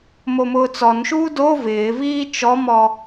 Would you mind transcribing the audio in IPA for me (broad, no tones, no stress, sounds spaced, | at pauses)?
m o m ʊː t͡s ɔ n ʃ uː d o v ɪː v iː t͡ʃ ɔ m ɔ